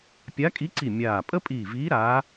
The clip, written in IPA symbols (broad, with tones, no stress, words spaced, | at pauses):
pʲa˧˥kʼi˧˥ǀi˧˩ mʲaː˧˩ pʼə˥pʼiː˧˩viː˧˥ ɾaː˧˥